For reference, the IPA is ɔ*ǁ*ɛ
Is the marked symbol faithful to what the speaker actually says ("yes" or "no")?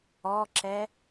yes